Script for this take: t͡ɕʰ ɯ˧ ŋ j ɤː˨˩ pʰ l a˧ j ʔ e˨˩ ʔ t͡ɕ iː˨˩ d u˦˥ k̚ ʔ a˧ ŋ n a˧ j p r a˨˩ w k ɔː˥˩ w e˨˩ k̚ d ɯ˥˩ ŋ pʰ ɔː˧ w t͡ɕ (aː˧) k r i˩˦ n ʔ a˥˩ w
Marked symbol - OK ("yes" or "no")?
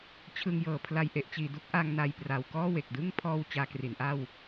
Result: yes